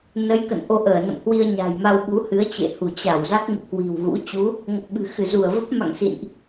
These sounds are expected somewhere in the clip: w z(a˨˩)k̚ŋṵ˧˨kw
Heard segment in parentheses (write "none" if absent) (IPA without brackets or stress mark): a˦˥